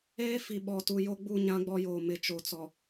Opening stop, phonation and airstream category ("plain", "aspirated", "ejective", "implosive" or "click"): implosive